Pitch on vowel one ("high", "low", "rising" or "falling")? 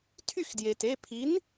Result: falling